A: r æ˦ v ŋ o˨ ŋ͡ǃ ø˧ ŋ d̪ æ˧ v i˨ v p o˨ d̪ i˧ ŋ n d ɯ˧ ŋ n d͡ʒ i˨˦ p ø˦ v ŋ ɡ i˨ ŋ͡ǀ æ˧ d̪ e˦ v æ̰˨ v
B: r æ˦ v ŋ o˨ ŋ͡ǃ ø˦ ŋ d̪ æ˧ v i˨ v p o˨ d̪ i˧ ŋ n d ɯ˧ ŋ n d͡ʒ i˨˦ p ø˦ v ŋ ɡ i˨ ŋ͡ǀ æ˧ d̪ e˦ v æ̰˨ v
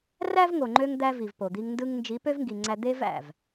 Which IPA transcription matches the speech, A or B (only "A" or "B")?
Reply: A